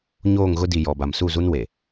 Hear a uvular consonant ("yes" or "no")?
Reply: no